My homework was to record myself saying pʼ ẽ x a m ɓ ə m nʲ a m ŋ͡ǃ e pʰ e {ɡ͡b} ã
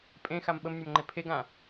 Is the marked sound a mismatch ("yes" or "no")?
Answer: yes